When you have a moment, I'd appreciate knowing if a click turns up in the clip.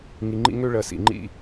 yes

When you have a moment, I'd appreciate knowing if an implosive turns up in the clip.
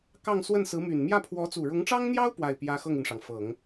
no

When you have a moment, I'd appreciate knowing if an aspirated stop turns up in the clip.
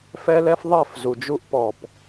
no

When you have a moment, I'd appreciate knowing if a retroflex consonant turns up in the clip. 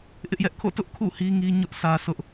no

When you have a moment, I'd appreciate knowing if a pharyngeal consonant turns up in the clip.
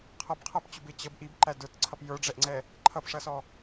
no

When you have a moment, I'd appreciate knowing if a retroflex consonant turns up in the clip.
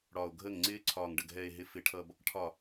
yes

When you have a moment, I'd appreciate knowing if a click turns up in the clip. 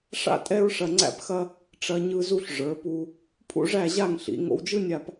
yes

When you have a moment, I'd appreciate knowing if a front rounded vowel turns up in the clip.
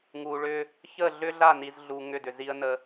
yes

